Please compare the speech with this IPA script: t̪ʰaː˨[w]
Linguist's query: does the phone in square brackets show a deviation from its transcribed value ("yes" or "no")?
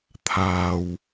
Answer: no